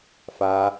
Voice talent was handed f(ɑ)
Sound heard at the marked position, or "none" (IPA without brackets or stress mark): a